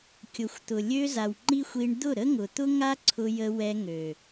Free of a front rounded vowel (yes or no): no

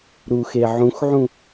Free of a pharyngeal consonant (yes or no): no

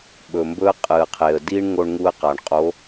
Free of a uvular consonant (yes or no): no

